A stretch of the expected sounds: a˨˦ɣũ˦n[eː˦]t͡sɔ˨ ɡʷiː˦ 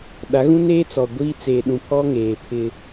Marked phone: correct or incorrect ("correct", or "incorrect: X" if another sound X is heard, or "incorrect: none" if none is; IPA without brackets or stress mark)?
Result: correct